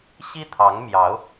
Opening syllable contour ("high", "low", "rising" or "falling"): high